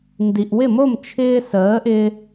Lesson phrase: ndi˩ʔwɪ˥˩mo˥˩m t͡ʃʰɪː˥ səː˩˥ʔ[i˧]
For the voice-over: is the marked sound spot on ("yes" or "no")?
no